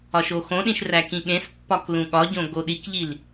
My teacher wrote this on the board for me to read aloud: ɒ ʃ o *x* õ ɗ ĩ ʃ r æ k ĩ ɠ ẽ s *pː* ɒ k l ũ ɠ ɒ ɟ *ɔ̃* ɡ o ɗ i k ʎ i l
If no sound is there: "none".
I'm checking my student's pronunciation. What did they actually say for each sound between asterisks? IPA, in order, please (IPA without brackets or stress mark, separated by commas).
x, pː, õ